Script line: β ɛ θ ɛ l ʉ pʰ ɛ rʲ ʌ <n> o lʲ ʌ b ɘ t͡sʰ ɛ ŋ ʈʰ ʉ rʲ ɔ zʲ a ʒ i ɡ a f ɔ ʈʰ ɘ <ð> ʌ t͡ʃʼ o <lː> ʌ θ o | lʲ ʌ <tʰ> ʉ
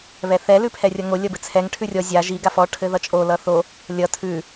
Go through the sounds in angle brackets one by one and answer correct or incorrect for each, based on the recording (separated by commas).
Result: incorrect, correct, incorrect, correct